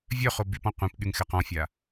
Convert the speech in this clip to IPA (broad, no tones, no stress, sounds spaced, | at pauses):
vʲ œ χ o b y p ɔ̃ qʷ ĩ p ɠ y ŋ x ɛ q ɔ̃ fʲ a